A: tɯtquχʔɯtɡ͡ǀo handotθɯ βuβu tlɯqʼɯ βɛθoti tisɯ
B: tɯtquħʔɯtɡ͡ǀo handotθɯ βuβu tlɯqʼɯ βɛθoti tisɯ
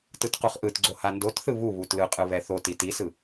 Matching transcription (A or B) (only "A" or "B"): A